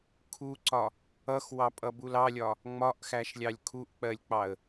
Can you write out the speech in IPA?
kʰ u ǀ ɒ | ʌ x w ɑ pʼ ʌ b u l ɑ lʲ ɒ | ŋ͡m ɒ ʔ x æ ʃ lʲ ɑ lʲ kʰ u ʔ k͡p ɜ lʲ k͡p ɑ ə̯

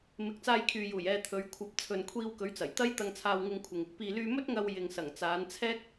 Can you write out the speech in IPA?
m ɪ˨˥ k̚ t͡s aː˧ j kʰ yː˨ j uː˨˩ j ɛː˧ t̪ʰ ɵ˨˧ ɥ kʷʰ ɐ˨ p̚ t͡sʰ ɵ˨ n kʷʰ iː˧ w k ɵ˨˥ ɥ t͡s ɐ˨˩ j t̪ ɐ˥ j t̪ ɐ˧ ŋ t͡sʰ aː˧ w ŋ ɪ˧ ŋ kʷʰ ɪ˨ ŋ | p iː˨ l yː˧ m ɵ˥ t̚ ŋ ɐ˧ w j ɪ˨ ŋ s ɐ˨˩ ŋ t͡s aː˨˧ n t͡sʰ ɛː˥ k̚

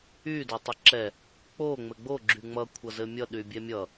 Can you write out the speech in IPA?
y d o tˤ ʌ ǁ ɛ | k͡p o ŋ͡m ɘ ɡ͡b o ɡ͡ǁ y ŋ͡m ʌ kʷʰ ʌ z ɘ mʲ ʌ ɗ y bʲ ɛ mʲ ʌ

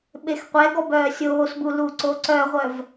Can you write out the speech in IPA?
ɓ e x qʷ ɛ ɡ ɔ b œː sʲ oː s b u l u ǀ o ǀ œ ʁʷ œ v

